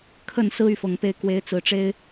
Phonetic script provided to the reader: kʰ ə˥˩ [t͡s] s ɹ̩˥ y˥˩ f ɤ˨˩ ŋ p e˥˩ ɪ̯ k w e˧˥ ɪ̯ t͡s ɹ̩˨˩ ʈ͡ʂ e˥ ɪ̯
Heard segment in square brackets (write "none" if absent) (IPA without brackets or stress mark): n